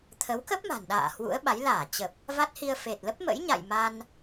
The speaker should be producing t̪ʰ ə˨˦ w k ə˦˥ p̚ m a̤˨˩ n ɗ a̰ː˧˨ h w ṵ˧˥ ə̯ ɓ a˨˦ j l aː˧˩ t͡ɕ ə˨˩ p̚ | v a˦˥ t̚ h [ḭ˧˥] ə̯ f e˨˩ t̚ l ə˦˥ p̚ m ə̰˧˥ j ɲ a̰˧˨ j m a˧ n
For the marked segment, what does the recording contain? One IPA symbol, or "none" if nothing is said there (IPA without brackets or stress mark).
i˧